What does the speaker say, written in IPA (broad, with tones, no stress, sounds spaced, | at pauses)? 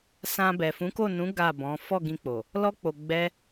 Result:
s ã˧ b ɛ˨ f ũ˨˦ k o˦˨ n ũ˨˦ ɡ a˦˨ b ɔ̃˨˦ f ɔ˦˨ ɡ ĩ˧ k͡p o˨ | l ɔ˦ k͡p o˧ ɡ͡b ɛ˦